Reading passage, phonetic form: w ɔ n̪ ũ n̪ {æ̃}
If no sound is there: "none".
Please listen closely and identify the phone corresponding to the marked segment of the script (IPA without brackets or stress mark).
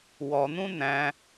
æ̃